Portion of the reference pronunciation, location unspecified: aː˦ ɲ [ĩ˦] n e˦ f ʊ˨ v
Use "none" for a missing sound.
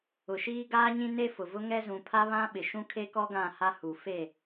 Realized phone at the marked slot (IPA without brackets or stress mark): ĩ˦